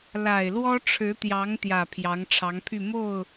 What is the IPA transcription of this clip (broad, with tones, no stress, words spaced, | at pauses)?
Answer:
la˨˩ɪ̯lwɔ˥ʈ͡ʂʰɻ̩˧˥t̪jɑ˧˥ŋ t̪jä˨˩ pʰjɑ˧˥ŋʈ͡ʂʰɑ˧˥ŋpʰy˥˧ mo˥˩ʊ̯